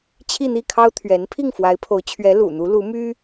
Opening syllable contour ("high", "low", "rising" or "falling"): falling